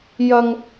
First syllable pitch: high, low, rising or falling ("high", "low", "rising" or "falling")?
high